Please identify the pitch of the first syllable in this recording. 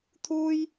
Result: high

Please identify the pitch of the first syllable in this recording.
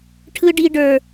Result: high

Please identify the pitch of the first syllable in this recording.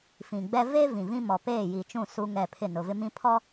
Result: low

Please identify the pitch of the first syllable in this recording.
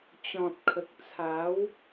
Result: low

